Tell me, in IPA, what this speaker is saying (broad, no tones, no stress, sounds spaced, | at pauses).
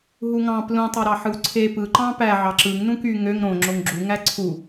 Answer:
ɦ u ŋ ɑ̃ p l ũ tˤ ɑ ɾ ɑ ħ ɯ w ǀʰ e p ɯ ǃ ɑ̃ p æ ʕ ɑ ǁ ɯ ŋ n ũ k y ŋ ø ŋ ɾ õ ŋ͡ǁ o ŋ ɡ͡ǁ u ŋ æ ǀʰ u